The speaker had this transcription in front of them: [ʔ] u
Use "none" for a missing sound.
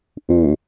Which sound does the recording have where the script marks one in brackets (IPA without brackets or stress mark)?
ʔ